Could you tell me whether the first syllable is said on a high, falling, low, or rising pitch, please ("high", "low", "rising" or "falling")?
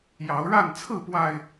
rising